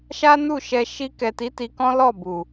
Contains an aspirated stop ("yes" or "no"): no